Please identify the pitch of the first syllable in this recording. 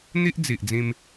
high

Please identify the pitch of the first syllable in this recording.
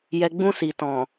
low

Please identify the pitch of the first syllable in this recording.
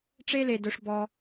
high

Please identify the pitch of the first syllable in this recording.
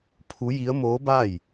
rising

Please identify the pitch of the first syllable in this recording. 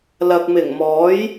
low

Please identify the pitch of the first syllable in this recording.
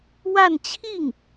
falling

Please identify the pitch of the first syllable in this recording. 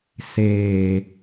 low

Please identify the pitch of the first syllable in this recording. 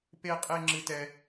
high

